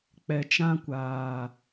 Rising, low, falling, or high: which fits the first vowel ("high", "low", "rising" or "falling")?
low